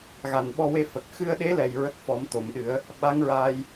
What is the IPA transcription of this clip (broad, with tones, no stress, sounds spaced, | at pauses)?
ɣ a˨˩ n ɓ ɔ˧ w e˧ f ə˨˩ k̚ x ɨ˧ ə̯ ɗ e˧˥ l ɛ˨˩ j ɹ ə˦˥ k̚ f ɔ˨˩˦ m t̪ o˨˩˨ m ɗ ɨ˨˩˦ ə̯ | ɓ a˧˥ ŋ ɹ aː˧ j